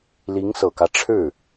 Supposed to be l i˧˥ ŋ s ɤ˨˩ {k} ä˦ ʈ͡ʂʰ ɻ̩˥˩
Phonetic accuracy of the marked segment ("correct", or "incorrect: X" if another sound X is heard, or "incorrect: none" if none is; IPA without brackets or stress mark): correct